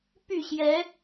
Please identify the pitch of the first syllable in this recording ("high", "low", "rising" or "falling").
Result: falling